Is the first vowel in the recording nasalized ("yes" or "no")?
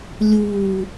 no